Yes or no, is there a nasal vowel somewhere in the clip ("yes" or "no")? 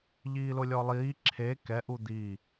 no